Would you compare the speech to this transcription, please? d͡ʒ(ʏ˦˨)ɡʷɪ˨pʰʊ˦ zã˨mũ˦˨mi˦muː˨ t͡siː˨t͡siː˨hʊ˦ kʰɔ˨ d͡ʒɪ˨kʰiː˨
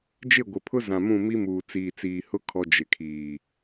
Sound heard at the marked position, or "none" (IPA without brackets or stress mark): ɪ˦˨